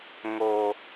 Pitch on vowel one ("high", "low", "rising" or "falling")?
low